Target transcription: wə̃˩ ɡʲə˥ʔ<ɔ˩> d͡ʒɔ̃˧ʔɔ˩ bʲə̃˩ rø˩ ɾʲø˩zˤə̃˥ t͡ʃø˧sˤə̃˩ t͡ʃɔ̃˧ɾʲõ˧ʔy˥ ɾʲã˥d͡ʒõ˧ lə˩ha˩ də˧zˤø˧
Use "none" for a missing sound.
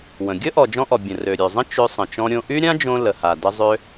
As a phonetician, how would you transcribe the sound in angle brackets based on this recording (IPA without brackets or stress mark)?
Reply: ɔ˩